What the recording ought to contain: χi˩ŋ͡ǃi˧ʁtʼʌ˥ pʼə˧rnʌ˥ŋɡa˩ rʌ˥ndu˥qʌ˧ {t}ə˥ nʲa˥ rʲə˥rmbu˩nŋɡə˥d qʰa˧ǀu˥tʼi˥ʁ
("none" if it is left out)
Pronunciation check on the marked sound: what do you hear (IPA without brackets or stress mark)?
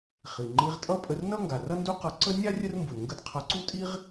ǀ